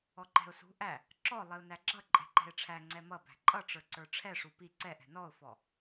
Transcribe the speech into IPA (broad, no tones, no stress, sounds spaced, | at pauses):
ɔ ǃ ɛ̤ ʊ̯ s ṳ ʔ æ | ǁ ɔ lˠ i ʊ̯ n æ ɡ͡ǁ ʌ ǃʼ ɛ̤ ǃ ɛ̤ ɪ̯ ʈ͡ʂʰ æ ŋ͡ǀ ɛ m ʌ b æ̤ ǃʼ ʌ ʈ͡ʂ ə˞ ǀ ə˞ ʈ͡ʂʰ ɛ ʂ u p i ǀ ɛ ʔ ɛ̤ n ɔ ʊ̯ f ɔ